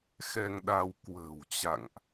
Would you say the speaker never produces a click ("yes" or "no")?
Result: yes